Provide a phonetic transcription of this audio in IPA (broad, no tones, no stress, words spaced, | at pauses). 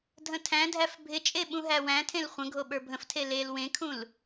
dʱə̃tʰæ̃dʱæf bʱɪt͡ʃʼe ɓũɦæwæ̃tʰẽl χʷə̃ ɡʱoɓə˞bʱə̃ftʰe lel wẽkʰũl